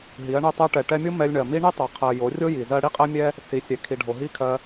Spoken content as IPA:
ɦi˨˦ɐ̯ɳɛ˦ tˤɜ˧ʈɛ˨ʈɛ˧mʲo˦ mɛ˧lʲɳɜ˨mi˦ ɳi˦tˤɛ˨ qʰɜ˨ jo˨˦rʲo˦ ji˨zɜ˦ ɽi˦qʼɛ˦mʲɛ˦ | si˨˦ sʲɛ˨kʰi˨ɖʱo˨ ɦi˦˨kʰɜ˧

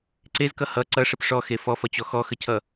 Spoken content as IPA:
ǀezkʌ hʌ ǀʌʂəp ʂɔxe fɔfʌt͡ɕɔ xɔxəcʰʌ

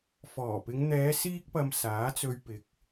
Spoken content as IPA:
fɔː˨˩pɪ˨˧ŋ n̪ɛː˨˧ siː˥k̚pɐ˧m saː˨˥t͡sɵ˧ɥpɪ˨k̚

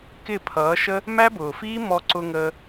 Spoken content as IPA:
kɪ˦˨pʰʌː˨˦ ʃə˦ | mæ˦bʊː˨fiː˦ mɔ˦ ǀʊ˧ŋəː˧

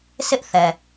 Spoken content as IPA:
sɪ˦ʔθɛ˨

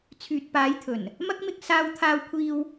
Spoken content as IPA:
t͡sʰyː˨t̚paː˨˧jt̪ʰɵ˨˩n | mɐ˥k̚mɪ˧k̚ saː˧wt̪ʰaː˧wkʷʰiː˧w

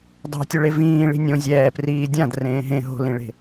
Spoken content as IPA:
dˤa̤tʲɵɭe vĩːɭi̤ nʲõ zʲɛːpriː dʲãdrẽː ɦẽ ɦo̤lĩɭe̤

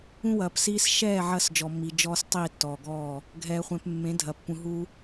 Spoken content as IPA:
ũ˦wɐː˨psiː˦s ʃɛː˦˨ ʕɐː˦sd͡ʒɔ˨mːi˨ d͡ʒɔː˦stˤiː˦˨ tːɔː˨ɡɔː˦˨ | ɡʱɛː˨χʷɛ̃˨p mːẽ˨˦dʱɐ˨pːũ˨ ɦu˦

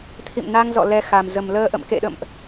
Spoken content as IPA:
t̪ʰḭ˧˨mna˧ŋzɔ̰˧˨ lɛ˧xa˨˩m zə˨˩mləː˧ʔə̰˧˨m kḛ˧˨ɗə̰˧˨mʔ

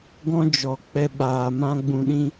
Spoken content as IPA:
ɡɔ̃˦d͡ʒɔ˨ k͡pɛ˧ ɓaː˨mã˦ɡ͡bũ˧ɗĩ˦

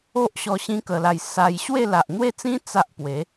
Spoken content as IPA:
o˦ʔɕɔ˧ ɕĩ˦kə˧la˧j sa˧jɕwe˥˧ la˨ʔn̪we˥˧t͡sĩ˦ t͡sa˦ʔpwe˨˦

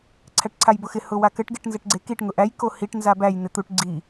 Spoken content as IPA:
ǀʰæʈǀʰajbʊxɪ hʊwakɘʈ ɡeʈnzɘʈɡ͡ǀekiʈ ŋʊʔæj kohiʈ nzabæj n̪ɪt̪uʈ ɡ͡ǀi

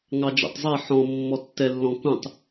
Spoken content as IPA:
ŋɑd͡ʒɛ̰tˤzˤɛ ħɔ̃ mːɔtːɛlːɔ̃ kũtˤ

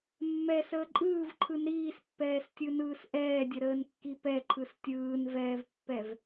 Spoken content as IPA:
mːɛsəː ǃʼɯːvǃʰɯn ɾiːspːɛːstʲɯnɯːs ʔɛːdʲəɾəːnkːi pɛǃʰɯs tʲɯːnvɛːvpːɛv

